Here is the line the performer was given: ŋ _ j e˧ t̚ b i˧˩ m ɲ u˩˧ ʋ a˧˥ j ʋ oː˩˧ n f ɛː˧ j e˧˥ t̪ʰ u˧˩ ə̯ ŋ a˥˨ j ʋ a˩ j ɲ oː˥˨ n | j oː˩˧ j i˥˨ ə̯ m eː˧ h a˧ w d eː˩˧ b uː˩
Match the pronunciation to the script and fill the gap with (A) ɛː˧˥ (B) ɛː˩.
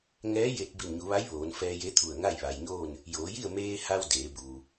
A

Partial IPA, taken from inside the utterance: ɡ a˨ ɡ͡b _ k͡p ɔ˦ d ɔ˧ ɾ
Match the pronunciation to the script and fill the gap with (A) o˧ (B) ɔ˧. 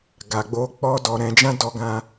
A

